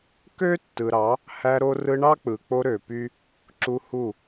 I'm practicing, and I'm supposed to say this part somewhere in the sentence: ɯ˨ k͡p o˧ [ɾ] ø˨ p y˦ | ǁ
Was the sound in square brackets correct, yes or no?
yes